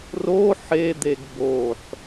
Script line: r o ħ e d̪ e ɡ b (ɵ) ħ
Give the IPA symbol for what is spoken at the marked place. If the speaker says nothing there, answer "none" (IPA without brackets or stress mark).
o